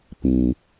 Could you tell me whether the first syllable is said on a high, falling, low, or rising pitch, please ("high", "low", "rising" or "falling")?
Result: low